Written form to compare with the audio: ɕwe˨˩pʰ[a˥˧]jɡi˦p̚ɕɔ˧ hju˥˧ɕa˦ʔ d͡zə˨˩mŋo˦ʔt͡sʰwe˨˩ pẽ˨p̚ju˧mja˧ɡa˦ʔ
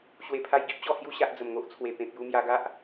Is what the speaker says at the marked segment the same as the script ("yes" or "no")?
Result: no